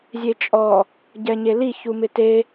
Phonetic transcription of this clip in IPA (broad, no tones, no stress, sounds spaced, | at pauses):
zʲ e t͡ʃʼ ɔ | ɟ ɛ ɲ e l i ç u m ɪ t e